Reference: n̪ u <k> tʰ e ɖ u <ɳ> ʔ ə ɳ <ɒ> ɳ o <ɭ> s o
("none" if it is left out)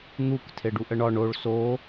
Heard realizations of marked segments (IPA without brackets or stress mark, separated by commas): k, none, ɒ, ɭ